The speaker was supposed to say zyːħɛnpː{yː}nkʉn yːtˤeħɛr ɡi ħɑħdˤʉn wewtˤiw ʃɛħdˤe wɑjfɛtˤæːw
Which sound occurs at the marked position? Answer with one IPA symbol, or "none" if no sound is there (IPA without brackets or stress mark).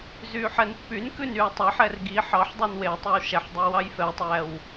y